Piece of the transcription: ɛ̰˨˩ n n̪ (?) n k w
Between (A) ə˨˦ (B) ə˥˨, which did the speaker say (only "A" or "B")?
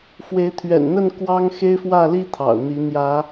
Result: B